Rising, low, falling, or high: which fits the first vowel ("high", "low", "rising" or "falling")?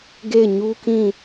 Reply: falling